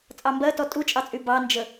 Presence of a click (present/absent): absent